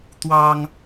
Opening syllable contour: high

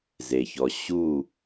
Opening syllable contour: low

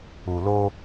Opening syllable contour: low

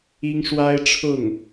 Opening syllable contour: high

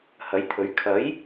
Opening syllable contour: rising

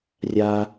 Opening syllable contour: low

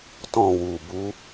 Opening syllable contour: falling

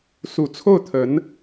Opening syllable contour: low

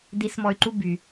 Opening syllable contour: rising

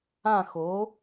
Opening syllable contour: falling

